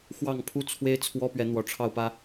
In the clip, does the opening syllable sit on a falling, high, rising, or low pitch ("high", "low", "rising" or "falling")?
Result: falling